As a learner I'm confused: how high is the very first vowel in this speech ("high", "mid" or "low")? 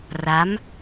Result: low